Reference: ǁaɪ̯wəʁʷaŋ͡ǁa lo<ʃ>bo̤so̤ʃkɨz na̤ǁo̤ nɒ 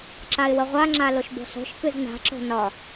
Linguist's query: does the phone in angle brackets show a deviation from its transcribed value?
no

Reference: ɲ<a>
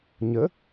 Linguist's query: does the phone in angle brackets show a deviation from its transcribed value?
yes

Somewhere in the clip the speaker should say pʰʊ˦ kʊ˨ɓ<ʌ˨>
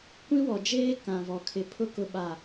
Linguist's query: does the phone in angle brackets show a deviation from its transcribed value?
yes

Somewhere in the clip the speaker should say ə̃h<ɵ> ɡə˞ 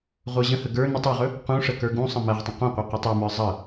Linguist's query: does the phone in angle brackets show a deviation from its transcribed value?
yes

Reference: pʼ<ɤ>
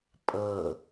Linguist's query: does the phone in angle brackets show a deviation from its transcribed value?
no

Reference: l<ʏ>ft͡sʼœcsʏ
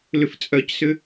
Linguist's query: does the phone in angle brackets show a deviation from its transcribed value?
no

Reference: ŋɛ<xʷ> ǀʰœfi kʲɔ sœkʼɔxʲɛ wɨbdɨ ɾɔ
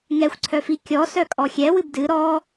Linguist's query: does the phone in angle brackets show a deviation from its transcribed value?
no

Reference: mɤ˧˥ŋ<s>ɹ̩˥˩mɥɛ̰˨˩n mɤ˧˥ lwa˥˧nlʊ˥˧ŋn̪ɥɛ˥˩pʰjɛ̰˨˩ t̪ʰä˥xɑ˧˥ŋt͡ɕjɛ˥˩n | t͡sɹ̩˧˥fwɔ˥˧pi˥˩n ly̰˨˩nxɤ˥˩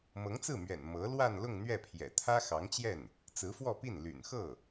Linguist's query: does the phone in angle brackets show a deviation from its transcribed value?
yes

